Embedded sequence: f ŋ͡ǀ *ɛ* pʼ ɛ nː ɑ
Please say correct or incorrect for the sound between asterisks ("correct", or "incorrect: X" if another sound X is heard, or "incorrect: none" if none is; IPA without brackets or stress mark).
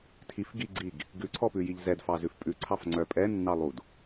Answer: incorrect: œ